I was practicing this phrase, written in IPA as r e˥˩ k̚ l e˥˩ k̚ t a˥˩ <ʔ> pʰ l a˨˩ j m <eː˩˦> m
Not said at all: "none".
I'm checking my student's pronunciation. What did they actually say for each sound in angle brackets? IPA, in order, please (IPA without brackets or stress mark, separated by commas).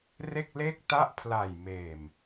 ʔ, eː˨˩